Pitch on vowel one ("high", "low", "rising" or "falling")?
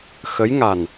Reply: rising